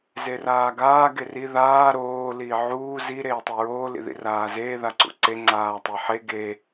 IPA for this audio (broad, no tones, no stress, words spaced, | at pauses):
zeraːɡaː ɡeri ðaː ɾoː liːʕuː zi ɾeːtˤiɹoː lḭðḭraːzeː ðaǀṵǀe ŋ͡ǀaːtˤiħe ɡe